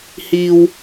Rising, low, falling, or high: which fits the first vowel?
high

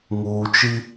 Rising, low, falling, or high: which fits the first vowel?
low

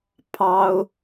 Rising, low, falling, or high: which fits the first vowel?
high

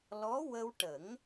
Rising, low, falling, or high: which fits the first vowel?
rising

